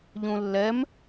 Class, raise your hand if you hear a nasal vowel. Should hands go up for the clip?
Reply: yes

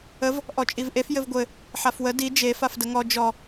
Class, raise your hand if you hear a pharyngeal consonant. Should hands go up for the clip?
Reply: yes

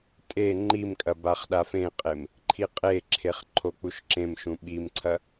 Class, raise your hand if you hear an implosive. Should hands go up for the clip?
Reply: yes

